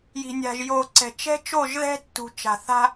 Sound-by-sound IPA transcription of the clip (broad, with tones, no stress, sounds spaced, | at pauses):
j i̤˨ nʲ a̤˨ ʒ j o˨ ǀ ɛ̤˨ t͡ʃ ɛ̤˦ t͡ʃ o˦˨ ʒ ð ɛ̤˦ tː ṳ˨ t͡ʃ a̤˨ θ a̤˦